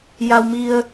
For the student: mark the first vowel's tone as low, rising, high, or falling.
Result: low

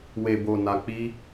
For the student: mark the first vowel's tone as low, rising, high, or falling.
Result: low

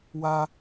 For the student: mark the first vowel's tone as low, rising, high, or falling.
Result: high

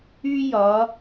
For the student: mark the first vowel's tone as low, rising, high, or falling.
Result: high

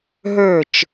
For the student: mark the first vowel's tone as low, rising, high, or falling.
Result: falling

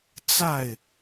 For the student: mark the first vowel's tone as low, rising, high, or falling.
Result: falling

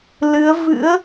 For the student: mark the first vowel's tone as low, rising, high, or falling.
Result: rising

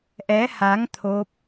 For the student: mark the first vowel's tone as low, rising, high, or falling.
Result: rising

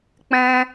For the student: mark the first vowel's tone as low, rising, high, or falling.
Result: high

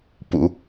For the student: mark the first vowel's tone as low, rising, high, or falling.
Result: low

